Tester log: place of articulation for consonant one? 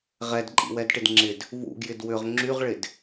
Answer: uvular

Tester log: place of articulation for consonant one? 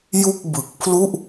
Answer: palatal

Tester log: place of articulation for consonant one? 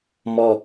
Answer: labial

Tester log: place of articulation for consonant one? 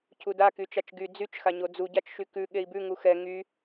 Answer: palatal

